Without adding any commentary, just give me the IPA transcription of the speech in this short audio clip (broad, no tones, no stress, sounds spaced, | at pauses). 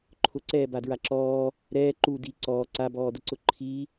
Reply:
ǃʰ ʊ ǀ ɛː b a d ɹ a ǁ ɔː | ɾ ɛː ǃ u d i ǀ ɔː ǀ a b ɔː d ʊ ǀ ʊ ǃʰ i